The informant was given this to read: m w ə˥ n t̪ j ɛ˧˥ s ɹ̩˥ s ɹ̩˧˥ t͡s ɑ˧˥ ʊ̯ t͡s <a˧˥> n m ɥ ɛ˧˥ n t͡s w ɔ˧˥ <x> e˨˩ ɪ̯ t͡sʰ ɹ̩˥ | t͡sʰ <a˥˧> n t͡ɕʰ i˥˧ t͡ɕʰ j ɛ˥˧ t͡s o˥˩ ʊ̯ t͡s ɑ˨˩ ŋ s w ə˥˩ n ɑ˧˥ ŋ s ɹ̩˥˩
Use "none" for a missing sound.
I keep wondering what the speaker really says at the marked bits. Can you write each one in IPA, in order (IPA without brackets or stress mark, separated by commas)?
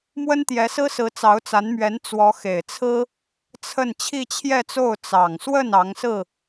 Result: a˧˥, x, ə˥˧